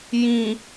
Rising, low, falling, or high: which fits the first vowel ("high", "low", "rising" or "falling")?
low